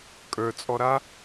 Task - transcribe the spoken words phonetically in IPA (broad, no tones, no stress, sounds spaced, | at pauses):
kʼ ə˞ t͡sʼ ɔ ɾ a